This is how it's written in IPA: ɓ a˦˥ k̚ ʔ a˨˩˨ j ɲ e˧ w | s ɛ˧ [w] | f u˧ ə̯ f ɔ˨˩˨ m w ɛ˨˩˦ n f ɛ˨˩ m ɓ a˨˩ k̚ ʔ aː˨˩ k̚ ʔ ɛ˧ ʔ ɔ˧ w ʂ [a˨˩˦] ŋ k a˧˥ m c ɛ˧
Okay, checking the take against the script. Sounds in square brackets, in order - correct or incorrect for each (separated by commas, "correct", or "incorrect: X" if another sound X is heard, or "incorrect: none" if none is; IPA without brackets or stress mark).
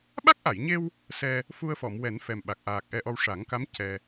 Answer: incorrect: none, correct